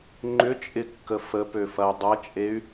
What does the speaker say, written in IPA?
ŋ͡ǃʏt͡ʃʼɪkːə fəpøfɐy̯ dˤɐt͡ʃʼey̯

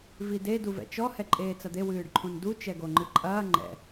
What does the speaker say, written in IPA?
vide duvɛ̰t͡ʃɔ hɛǃʼeːt͡sɐd̪e wɨːɖǃʰũndu t͡ʃɛɡoŋ͡ǃɨǃʼɐː ŋ͡ǃɛ̰

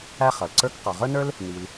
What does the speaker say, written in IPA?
æ˥χʌ˩lǀə˞˥k qɔ˩ʁə˞˥nə˞˥l | ni˩l

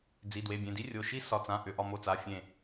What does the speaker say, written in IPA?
d͡zi˩˧˩dwe˩˧˩bʲẽ˩˧˩di˦˥ rʲo˩˧˩ʃi˦˥ sɒ˩˧˩t͡sã˩˧˩ʔʏ˩˧˩ ʔɒ˧˩mo˧˩t͡sa˩˧˩ fʲẽ˧˩

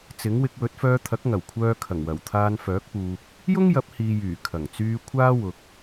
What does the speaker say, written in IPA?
t͡sɪ˨˥ŋwɪ˧k̚ wɵ˨˥t̚fœː˧t̪ʰɐ˨˥k̚ŋɐ˨˩w kʷʰœː˧kʰɐ˨˩ŋwɐ˨˩w t̪ʰaː˧nfœː˨˥k̚puː˨k̚ | jʊ˥ŋjɐ˨˥p̚hiː˨jyː˨˩ kʰɐ˨˩ŋt͡syː˧ kʷʰaː˥wʊ˨k̚

